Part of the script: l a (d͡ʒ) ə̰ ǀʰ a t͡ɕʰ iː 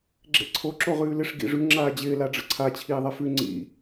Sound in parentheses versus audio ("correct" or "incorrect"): incorrect